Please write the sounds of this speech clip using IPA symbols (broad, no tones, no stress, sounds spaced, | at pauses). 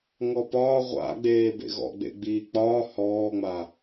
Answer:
ŋ ɔ p ɒː ʁʷ a̰ ɡ͡b eː b ḛ ɣ ɔ̰ ɡ͡b ḛ ɡ͡b iː k͡p ɒː h ɔː ŋ͡m a